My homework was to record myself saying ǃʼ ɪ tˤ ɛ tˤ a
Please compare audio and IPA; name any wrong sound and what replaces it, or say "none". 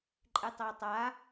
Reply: ɛ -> æ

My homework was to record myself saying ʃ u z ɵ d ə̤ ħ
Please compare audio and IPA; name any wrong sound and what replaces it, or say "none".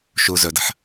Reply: none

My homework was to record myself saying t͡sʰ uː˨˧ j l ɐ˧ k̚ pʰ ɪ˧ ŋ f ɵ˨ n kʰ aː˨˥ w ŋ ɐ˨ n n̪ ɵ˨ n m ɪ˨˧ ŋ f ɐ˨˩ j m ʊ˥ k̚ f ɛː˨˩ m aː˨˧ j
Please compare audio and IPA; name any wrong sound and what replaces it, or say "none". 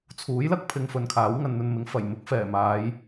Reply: uː˨˧ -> uː˨˥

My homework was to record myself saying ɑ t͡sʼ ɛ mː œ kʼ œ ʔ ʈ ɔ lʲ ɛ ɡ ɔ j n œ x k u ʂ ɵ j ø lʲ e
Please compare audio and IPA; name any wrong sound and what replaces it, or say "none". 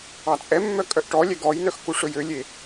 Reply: none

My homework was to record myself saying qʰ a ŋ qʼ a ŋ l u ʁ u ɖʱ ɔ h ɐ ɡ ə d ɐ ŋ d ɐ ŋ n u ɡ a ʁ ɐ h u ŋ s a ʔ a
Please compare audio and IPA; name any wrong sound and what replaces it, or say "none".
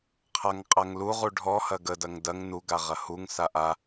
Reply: none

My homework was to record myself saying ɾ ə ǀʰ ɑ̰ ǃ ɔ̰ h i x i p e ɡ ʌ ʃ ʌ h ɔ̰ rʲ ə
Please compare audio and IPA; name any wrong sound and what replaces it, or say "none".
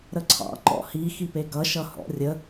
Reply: none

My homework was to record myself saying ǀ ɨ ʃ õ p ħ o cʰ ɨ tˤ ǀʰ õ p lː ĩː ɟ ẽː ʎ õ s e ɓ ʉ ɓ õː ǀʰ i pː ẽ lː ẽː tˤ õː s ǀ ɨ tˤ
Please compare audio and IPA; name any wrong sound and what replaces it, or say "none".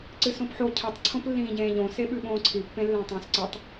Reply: ʃ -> s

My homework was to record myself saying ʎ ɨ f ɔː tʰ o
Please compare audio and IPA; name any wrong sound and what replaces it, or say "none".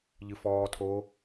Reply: none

